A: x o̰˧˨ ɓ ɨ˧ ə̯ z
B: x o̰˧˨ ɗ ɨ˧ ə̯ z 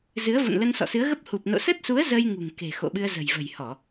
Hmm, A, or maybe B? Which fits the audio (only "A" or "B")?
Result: A